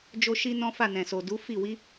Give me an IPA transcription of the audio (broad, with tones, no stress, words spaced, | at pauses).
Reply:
d͡ʒo˦ʃi˦nɔ̃˦fa˦˨ nɛ̃˨so˨du˨˦fi˦˨ wi˨˦